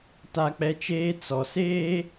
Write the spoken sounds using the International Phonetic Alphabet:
ta˦k͡pɛ˦t͡ʃeː˦ t͡sɔ˨seː˦

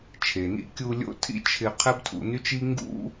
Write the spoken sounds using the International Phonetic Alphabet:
t͡ʃʰe˩nḭ˧ kʲu˧ lʲo̰˥tʰḭ˥t͡ʃʰɪ˧ qʰɛ˥btʰṵ˧ny˥t͡ʃi˥ ŋɡṵ˥

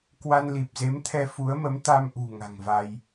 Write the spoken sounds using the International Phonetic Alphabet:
kwa˧nli˨˩p̚ze˨˦mt̪ʰɛ˧ fu˨˦ə̯mə˨˦m t̪a˧mʔṳ˨˩ ŋa̤˨˩ŋva˧j

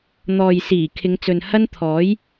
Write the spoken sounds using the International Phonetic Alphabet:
n̪ɔː˨jsiː˨˩ kʰɪ˨˧ŋt͡sɵ˨n hɐ˥nt̪ʰɔː˨˥j

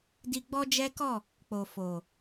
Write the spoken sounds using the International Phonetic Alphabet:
di˧ ɡ͡bɔ˦d͡ʒɛ˦kɔ˦˨ | k͡po˨fo˨

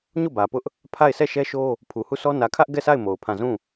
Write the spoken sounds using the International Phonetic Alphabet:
ɲo˦˨bä˨pʊ˦ʔ | pʰa˦˨ɪ̯ sɛ˦˨ʃɛ˦ʃo˦ | pʰu˨hu˦˨sɔ˦ nä˨kʰä˦ʔ ɡɛ˦˨sa˦˨ɪ̯ mo˨ʊ̯pʰã˦˨ zũ˦˨

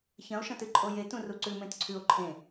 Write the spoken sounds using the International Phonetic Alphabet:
çɐ̃o̯ʃɐ̃tɨ ǃʼojetũ ruǀʉmẽt ǀʰʉo̯ ǃʰẽ

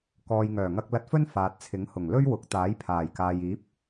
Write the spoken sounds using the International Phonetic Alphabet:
kɔː˨jŋœː˨˩ŋɐ˧k̚lɐ˧t̚ fɵ˥n faː˨t̚ t͡sʰɪ˨˥ŋ hʊ˨˩ŋ lɵ˥ɥwʊ˨˥k̚ t̪aː˨˥jpʰaː˨˩jkaː˨jiː˨˥p̚

